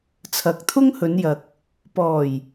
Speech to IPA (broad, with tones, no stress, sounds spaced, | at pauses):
t͡sʰ ɐ˨˥ k̚ t̪ʰ ʊ˥ ŋ h ɵ˨˧ n j ɐ˨ k̚ | p ɔː˨˩ j